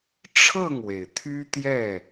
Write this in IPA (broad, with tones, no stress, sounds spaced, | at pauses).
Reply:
ʈ͡ʂʰ ɤ˥˨ ŋ w e˩ ɪ̯ t̪ʰ y˦ t̪ j ɛ˥˨